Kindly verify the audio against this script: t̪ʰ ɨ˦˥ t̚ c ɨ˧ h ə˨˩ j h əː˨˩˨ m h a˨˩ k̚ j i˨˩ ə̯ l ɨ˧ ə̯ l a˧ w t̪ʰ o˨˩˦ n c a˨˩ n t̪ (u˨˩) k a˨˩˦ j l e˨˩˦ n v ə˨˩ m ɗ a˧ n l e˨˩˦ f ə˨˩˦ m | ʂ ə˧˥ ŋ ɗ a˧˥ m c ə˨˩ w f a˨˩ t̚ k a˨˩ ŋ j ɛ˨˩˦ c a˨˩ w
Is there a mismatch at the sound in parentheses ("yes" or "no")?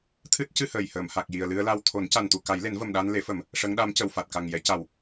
no